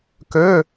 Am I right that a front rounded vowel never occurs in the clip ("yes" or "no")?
no